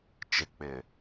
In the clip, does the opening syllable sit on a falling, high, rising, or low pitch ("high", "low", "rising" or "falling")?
low